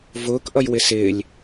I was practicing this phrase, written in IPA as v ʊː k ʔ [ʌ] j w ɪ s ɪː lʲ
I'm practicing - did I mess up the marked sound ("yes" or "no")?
no